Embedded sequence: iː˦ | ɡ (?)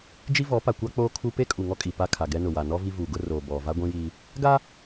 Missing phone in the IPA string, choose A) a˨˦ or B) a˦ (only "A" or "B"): B